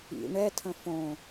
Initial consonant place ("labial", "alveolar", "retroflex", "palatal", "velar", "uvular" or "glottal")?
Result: retroflex